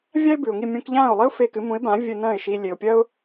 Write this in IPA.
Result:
vʲa˥ɪ̯ bʉ˩ʊ̯ŋi˥˩ mʲũ˧kʎãː˥˩ʊ̯lˠi˥ʊ̯ fe˧kɨ˩˥mũ˩˥ɪ̯bã˩˥ vʲɨ˧nɐ̃ː˥˩ɪ̯ʃi˧ lʲe˩ʊ̯pʲɐ˥ʊ̯

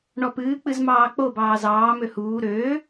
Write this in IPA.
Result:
ɳɔpɨːk͡pɨz mɑːk͡pobɑː zɑː møhuː ɾøː

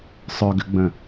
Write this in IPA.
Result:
sˤœɡʏɡ͡bə̃

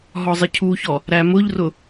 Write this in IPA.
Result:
ɦɔzˤɪcʰuçɔ | ɾæmʊʎrʊ

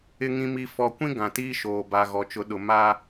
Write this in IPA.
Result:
ɪ˨ŋĩ˨mi˨ fɔ˨kʷĩ˦ ɡã˨tiː˦ʃoː˨ ba˨ɣɔ˨t͡ʃʊ˨˦ɗʊ˨ ma˦

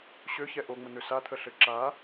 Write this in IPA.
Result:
ɕøçɛ ʔoŋ͡mən̪ø sat̪ʰəɬɘ ǁa

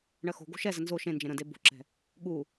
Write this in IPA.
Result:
ɳɜxo̤ɡo̤ ʃɛzə nzo ʃẽ nd͡ʒẽɾə̃de bo̤ǁɛ̤ | ɠu

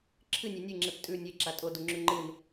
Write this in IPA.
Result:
ǁʰɨnʲe nʲɨŋ͡ǁep tʼʉ nʲeǁa tʼoduŋ͡ǁʉ ŋ͡ǃɨn

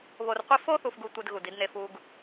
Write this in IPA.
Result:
βo˨rqʷi˦ fo˦θu˨fɡu˨ tʷe˦dɣu˨di˦dne˦ fu˦ɡ

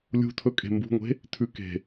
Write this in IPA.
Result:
lʲṳtʰɵ kʼe̤mbṳŋʷe̤ | tʰʉ ke̤

